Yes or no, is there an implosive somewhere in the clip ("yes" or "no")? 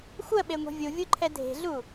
yes